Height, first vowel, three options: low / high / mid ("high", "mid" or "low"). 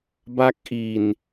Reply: low